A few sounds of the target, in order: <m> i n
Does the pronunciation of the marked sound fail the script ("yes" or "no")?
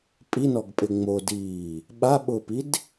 yes